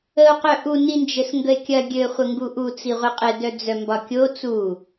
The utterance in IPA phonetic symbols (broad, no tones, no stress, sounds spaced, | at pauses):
ə o̯ q œ ʔ u n i n d͡ʒ ɘ s ŋ ɡ ə e̯ kʲ ɐ ɡʲ ɘ χʷ ə ŋ ɡ u ʔ u t͡s i ʁʷ ɘ qʼ ɘ d œ d͡z œ m b ɒ kʲ o t͡s u